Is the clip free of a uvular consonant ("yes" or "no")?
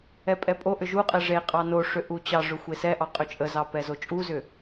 no